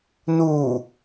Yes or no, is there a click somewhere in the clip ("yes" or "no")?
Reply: no